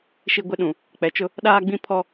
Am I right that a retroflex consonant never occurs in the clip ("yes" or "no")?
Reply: yes